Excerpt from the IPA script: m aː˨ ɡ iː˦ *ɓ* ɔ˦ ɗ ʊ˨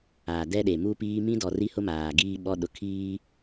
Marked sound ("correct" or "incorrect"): correct